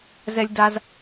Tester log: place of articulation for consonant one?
alveolar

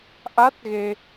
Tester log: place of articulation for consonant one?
glottal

